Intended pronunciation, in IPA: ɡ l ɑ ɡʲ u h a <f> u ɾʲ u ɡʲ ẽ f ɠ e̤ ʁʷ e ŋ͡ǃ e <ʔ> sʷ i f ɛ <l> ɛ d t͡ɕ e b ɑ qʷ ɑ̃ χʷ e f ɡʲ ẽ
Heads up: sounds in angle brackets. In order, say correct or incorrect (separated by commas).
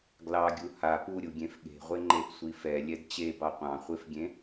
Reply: incorrect, correct, incorrect